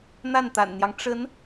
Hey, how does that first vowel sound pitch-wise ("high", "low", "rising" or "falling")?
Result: falling